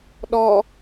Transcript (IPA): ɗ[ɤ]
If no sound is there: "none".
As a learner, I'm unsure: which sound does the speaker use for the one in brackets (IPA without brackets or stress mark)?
ɔ